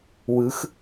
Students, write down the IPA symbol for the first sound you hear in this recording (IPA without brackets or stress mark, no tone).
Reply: w